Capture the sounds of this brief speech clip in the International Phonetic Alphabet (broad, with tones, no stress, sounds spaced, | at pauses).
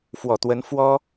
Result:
f w ɔ˨˩ t̪ w ə˧˥ n f w ɔ˥